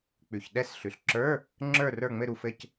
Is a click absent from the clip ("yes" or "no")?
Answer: no